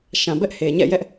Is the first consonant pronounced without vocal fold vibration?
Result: yes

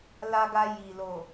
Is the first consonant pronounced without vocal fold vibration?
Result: no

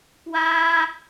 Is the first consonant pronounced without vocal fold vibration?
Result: yes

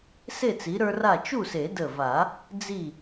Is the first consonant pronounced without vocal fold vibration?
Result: yes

